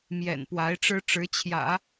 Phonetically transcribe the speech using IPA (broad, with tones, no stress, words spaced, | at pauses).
mjɛ̰˨˩npwa˧˥ɪ̯ʈ͡ʂɻ̩˥ ʈ͡ʂɻ̩˧˥t͡ɕʰjä̰˨˩˦